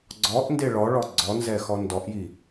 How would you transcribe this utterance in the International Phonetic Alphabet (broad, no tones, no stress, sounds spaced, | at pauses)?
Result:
ɡ͡ǀ ɔ ʔ n d e ɭ ɔ ɭ ɔ ɡ͡ǀ ɔ n z ɛ x ɔ n d ɔ ʔ j i